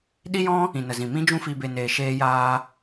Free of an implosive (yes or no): no